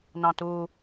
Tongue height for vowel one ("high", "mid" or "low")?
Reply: low